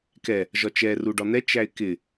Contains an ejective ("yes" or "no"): no